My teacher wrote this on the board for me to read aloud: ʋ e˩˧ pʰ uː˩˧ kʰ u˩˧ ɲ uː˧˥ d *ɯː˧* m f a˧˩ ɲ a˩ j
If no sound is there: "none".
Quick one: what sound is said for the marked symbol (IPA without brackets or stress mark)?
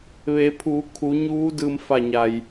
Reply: ɯː˧